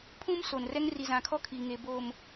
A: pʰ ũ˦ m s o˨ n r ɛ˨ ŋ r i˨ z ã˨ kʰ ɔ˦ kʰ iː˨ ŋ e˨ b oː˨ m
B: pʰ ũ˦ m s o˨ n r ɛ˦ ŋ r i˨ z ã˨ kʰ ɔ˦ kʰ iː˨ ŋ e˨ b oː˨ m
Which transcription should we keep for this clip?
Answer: B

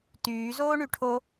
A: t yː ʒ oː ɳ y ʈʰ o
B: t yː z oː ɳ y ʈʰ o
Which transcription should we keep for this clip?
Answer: B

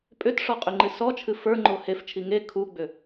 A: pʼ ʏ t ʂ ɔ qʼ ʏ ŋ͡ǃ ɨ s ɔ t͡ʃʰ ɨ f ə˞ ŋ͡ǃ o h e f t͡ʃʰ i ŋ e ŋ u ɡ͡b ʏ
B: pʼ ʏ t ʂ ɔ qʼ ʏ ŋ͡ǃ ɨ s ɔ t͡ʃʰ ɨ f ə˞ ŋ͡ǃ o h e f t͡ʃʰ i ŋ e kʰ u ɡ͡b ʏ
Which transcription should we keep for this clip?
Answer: B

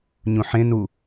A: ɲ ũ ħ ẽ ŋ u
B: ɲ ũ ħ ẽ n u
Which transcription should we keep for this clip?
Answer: B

